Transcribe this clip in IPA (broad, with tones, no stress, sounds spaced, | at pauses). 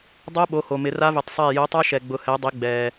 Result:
dˤ o˦˥ ɓ o˩˧˩ h o˩ m ɪ˩˧ r a˦˥ v ɪ˩˧ tˤ sˤ ɛː˧˩ j o˨˥ tˤ a˦˥ ʃ ɛ˩ ɡ͡b ʊ˩˧ h ɛ˩˧ dˤ i˩˧ ɡ͡b ɛː˩